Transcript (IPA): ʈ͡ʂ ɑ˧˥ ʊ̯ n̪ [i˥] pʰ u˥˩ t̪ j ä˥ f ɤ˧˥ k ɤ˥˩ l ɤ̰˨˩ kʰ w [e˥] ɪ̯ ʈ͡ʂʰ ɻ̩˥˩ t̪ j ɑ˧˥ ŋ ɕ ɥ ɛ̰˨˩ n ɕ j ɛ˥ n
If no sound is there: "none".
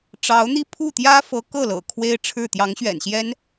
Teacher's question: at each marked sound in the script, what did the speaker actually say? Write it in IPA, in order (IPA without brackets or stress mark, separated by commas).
i˥, e˥